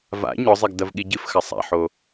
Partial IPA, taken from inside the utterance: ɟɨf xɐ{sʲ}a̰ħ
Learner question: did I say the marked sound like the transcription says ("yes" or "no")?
no